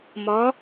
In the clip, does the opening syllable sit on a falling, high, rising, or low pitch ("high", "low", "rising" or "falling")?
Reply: rising